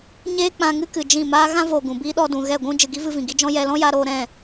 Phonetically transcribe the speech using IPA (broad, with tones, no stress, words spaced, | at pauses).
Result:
ɲeː˦k͡pã˧ŋɨ˦ kɨ˨ d͡ʒĩ˦˨maː˦ ɣã˦voː˨ ɡũ˨biː˦ ɗɔ˧dũ˨ɣɛ˦˨ ɡʷũ˦ d͡ʒɨ˨ɡi˦vɨ˧vĩ˨ ɡi˦d͡ʒɔ̃˦ jɛ˧lɔ̃˦ja˧ɾoː˧ ɾɛ̃˦˨